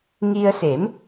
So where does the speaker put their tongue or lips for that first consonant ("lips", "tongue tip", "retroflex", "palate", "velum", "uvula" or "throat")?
velum